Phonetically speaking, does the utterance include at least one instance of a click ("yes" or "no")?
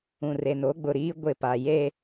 no